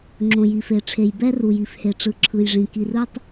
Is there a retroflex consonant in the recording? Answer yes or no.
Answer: yes